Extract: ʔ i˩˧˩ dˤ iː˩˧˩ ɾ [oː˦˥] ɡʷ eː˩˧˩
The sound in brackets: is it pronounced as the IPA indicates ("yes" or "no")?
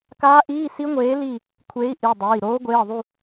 yes